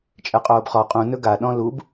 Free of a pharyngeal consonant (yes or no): yes